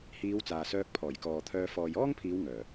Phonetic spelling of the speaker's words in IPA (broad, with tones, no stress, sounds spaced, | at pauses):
h iː˨˧ w t͡s aː˨ s œː˧ k̚ pʰ ɔː˨˩ j k ɔː˨ t̪ʰ œː˧ f ɔː˨ j ɔː˥ ŋ pʰ iː˨˧ w ŋ œː˨˩